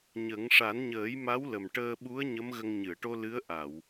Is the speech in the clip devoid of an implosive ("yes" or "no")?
no